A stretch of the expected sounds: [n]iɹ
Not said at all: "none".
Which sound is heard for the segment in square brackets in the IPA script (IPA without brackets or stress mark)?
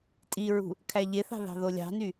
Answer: tʼ